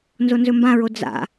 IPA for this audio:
n z o n z ɵ m b ã ɹ o d͡z a̰

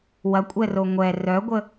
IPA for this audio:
w ɐ kʷʼ ɛ r o ŋʷ ɛ r œ ɡʷ ə

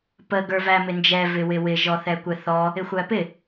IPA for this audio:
p ə ɡ ə˞ v æ m ɪ n d͡ʒ ɛ v ɪ w ɪ w ɪ ʒ ɔ θ ɛ kʷ ɛ θ ɔ | ɪ xʷ æ p ɪ

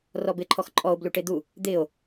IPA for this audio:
r ɔ b ɪ ǃʰ ɔ x ǃʼ ɔ o̯ b l u ʈ e d̪ u | d̪ ɪː o̯

